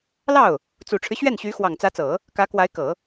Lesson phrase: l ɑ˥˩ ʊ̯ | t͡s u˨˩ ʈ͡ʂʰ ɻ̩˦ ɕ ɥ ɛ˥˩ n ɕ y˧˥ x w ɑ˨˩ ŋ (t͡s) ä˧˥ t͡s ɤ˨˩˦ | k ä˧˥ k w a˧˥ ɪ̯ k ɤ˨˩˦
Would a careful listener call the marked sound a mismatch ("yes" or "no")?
no